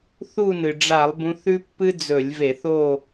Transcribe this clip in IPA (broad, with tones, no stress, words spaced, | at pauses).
θu˦˨nɨ˩ɖ͡ʐa˧˩˧lˠ bũ˨˦θʉ˦pːɨ˦ d͡zɵ˧˩˧lʲve˧˩˧θo˦˨